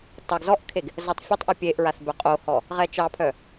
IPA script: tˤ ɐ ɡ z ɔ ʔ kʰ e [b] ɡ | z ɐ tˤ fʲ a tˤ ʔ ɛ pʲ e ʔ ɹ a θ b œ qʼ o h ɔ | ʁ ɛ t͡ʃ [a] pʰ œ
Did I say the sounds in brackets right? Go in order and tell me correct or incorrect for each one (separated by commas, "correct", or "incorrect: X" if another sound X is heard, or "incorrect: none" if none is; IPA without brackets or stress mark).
incorrect: none, incorrect: ɑ